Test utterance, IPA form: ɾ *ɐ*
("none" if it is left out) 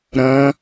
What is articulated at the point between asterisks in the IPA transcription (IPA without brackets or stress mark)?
ɐ̃